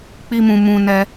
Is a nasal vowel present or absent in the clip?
present